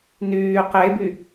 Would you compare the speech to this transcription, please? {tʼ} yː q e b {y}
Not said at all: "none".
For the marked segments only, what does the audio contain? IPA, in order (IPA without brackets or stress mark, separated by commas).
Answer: n, y